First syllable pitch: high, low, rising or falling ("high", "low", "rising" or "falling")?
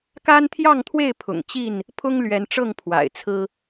high